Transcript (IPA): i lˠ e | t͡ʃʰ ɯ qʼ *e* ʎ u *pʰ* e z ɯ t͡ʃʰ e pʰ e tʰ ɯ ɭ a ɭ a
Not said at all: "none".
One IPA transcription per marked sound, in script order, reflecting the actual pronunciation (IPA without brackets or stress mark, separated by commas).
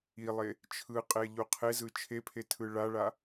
e, qʰ